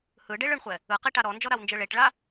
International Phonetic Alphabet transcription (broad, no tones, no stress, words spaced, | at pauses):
hɯɖeɭ ɯɳχʷɛ | ɯqiʈa ɾɔnd͡ʒɔɾawnd͡ʒɯ ɭeʈɭa